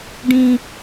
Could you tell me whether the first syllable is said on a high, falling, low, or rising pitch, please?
high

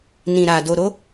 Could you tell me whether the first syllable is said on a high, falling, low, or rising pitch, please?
low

